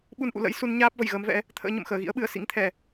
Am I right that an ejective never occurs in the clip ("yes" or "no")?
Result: yes